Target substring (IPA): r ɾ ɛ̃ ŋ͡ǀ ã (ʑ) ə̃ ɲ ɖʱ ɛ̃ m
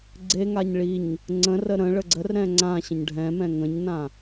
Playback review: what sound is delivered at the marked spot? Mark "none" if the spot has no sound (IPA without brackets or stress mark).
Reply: ɕ